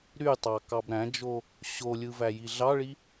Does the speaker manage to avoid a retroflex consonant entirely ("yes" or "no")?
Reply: no